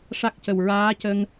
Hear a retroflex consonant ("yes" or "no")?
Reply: yes